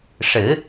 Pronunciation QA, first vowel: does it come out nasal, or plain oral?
oral